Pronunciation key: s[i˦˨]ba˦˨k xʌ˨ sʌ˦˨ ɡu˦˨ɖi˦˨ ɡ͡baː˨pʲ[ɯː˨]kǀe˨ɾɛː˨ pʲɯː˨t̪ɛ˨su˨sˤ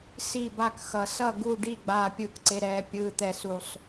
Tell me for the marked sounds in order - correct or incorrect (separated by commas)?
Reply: correct, correct